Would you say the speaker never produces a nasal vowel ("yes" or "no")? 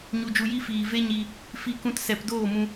no